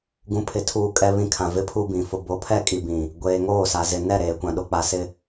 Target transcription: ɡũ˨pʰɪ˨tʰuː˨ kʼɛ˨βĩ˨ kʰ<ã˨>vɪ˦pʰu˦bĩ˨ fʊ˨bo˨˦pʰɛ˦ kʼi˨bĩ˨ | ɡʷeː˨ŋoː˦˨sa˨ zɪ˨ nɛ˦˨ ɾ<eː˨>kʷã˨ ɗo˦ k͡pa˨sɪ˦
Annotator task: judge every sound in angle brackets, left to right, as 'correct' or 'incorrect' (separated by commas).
correct, correct